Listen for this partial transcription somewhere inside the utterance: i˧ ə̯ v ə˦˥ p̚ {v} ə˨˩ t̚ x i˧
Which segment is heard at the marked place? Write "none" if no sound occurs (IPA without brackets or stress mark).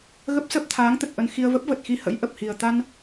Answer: v